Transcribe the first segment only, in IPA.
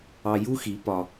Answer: ɑ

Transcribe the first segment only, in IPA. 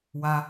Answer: w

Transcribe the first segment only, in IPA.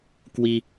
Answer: k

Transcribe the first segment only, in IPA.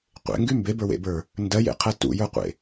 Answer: qʷ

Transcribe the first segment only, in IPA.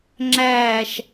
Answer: ŋ͡ǁ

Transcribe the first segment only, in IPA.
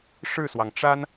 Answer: ʂ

